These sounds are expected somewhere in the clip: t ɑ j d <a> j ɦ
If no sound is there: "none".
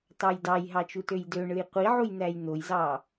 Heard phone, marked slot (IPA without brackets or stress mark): ɑ